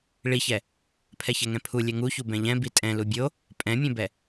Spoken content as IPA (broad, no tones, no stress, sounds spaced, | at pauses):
ɭ i ç ɛ | pʰ ɛ ç ɛ ŋ ɛ̃ pʰ u lʲ ɛ ŋ u ç u b ɛ̃ ʎ ɛ̃ b i tʼ ɛ̃ l u bʲ o | pʼ ɛ̃ mʲ ɛ̃ b ɛ